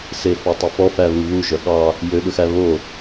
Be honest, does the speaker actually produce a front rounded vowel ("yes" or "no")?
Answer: yes